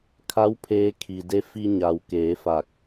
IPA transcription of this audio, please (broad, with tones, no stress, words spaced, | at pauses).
kʰa˧˥w pʰeː˧ kʰi˩de˧ fi˧ɲa˩w keː˩˧fa˧˩k̚